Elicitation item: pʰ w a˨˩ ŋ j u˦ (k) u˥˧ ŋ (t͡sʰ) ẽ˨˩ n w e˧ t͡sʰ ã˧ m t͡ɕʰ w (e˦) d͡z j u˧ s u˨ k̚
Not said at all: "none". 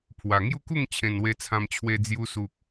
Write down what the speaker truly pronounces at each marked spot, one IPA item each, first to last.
k, t͡ɕʰ, e˧

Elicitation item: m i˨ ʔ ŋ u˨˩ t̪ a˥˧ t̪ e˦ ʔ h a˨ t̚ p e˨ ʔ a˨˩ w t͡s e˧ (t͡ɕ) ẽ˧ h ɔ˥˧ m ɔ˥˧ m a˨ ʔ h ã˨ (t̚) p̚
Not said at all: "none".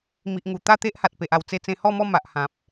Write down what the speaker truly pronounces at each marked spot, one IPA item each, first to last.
t͡s, none

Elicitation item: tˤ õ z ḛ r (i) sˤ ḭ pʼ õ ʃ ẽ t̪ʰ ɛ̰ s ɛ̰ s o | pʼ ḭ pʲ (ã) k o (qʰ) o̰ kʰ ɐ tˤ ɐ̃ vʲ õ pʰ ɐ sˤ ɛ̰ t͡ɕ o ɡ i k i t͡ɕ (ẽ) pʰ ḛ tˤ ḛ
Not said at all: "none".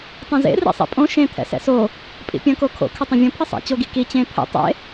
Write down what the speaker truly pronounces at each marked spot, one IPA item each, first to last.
ḭ, ɐ̃, kʰ, ẽ

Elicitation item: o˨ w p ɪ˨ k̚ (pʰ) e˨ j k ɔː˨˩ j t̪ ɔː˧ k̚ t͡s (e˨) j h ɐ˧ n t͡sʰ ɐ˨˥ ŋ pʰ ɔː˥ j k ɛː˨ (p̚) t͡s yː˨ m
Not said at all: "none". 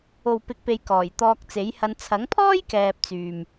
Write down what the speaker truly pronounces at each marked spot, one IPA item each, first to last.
p, e˨˥, p̚

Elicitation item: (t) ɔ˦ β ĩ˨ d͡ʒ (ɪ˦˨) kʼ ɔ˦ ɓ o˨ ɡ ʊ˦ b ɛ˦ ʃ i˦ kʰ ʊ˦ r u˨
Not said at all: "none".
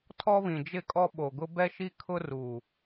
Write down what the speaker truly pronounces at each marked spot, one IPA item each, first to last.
tʰ, ɪ˦˨

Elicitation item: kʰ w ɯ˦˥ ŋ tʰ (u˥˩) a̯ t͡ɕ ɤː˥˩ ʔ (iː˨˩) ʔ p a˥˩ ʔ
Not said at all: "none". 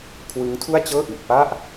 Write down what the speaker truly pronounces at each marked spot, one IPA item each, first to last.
u˥˩, i˨˩

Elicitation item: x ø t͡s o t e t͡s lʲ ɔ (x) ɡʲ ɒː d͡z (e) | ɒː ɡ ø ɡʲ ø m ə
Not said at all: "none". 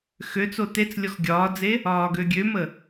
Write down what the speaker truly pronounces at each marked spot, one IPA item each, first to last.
x, e

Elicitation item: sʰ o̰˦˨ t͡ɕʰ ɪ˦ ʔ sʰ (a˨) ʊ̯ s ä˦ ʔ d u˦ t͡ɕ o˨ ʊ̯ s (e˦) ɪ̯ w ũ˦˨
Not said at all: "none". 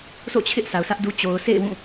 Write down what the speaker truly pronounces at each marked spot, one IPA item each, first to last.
a˨, ḛ˦˨

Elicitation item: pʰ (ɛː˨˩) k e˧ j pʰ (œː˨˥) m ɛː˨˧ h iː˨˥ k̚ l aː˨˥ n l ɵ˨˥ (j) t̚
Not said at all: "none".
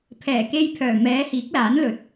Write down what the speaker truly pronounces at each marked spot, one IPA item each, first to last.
ɛː˨˩, œː˨˩, none

